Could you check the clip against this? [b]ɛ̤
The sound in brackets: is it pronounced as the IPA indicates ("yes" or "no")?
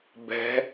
yes